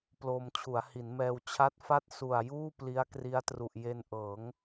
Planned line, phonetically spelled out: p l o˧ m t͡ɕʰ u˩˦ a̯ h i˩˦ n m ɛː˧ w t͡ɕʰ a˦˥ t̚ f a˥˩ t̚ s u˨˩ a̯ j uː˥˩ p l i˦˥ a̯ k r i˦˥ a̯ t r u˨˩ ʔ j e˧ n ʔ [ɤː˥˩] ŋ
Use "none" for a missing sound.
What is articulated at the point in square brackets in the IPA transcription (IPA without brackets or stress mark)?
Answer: ɤː˩˦